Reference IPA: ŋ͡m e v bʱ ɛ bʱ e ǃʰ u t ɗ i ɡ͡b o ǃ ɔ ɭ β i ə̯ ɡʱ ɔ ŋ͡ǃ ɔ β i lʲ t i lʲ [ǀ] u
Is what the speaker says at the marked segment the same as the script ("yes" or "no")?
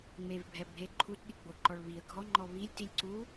yes